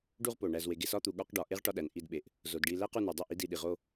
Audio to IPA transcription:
ɖ u˦ ʁ p o˨ ɳ æ˨ z w e˨ ɡ e˧ s ɒ˦ t̪ u˨ ɠ ɒ˦ q ɖ ɒ˨ ʔ e˦ ʁ ʈ ɒ˦ ɗ æ˨ n ʔ i˦˨ d ɓ e˨ ʔ | z o˨ d ɖ i˧ l æ˦ q u˧ n u˨ dˤ o˦˨ ʔ i˦ d i˧ ɗ i˨ ʁ o˦

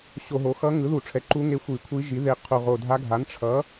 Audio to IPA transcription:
ɕ o˧˩˧ ɦ o˩˥ x ʌ˧˥ ŋ ɯ˩˥ ð u˧˩˧ ʈ͡ʂʰ ɛ˩˥ ǃ u˧˥ ŋ e˧ xʷ i˧˩˧ kʷʰ i˧˥ ʒ i˩˥ ð e˧ qʰ u˨˩ ʁ o˨˩ dʱ a˧˥ ɡʱ a˩˥ n ʈ͡ʂʰ ʌ˩˥

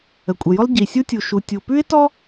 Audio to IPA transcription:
ə˩ kʷʼ ə˩ j ʊ˥ lˠ ɟ i˩ sʲ u˥ tʲ u˩ ʃ u˩ tʲ u˩ p ʉ˥ ɪ̯ t ɔ˥

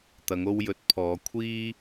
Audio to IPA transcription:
t̪ ɐ˨˧ ŋ o˧ w j ɵ˨˥ t̚ pʰ ɔː˨˧ kʷʰ iː˥

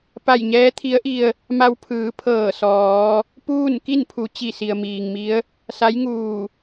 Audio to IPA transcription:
p a˧˩ j ɲ ɛː˧˥ t̪ʰ i˧˥ ə̯ ʔ i˧ ə̯ | m a˧ w pʰ ɯː˩˧ pʰ ɤː˧˩ s ɔː˩˧ | p uː˥˨ n k i˥˨ n pʰ u˩˧ t͡ɕ i˧˩ s i˩ ə̯ m iː˩ ŋ m i˧˥ ə̯ | s a˧˥ j ŋ uː˧˩

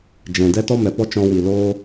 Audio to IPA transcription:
d͡ʒ ɛ̃˨ d ɛ˦ t ɔ˦ m ɛ˨ p ɔ˦ t͡ʃ ɔ̃˧ w i˨ l oː˦

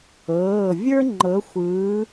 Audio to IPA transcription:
ɤː˩˧˩ vʲ ə˞˥ ŋ͡ǃ ɤ˨˦ xʷ ɯː˨˦

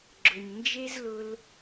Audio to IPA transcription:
ɡ͡ǁ ʊ˨ ɲ n d͡ʒ e˦ z l ʊ˧ l

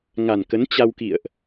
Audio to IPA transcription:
ŋ a˨˩ n k ə˨˦ n t͡ɕ a˧ w k ḭ˧˨ ə̯ ʔ

